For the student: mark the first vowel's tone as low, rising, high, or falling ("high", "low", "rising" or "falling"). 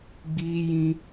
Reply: high